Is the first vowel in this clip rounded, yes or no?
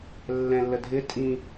no